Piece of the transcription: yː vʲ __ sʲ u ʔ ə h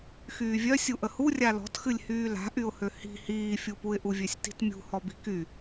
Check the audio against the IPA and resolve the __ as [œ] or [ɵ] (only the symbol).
œ